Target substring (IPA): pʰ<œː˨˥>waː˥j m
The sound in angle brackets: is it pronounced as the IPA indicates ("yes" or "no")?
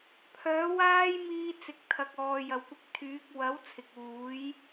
yes